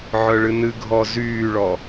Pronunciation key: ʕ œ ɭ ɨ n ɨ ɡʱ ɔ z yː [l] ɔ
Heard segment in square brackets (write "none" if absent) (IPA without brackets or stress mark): ɭ